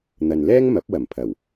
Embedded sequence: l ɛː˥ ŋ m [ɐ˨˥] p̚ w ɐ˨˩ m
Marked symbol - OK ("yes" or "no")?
yes